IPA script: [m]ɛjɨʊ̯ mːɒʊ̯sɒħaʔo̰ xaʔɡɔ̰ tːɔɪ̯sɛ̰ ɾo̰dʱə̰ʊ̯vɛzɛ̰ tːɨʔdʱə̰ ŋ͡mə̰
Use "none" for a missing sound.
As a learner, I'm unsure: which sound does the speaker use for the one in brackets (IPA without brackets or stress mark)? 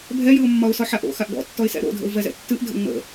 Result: bʱ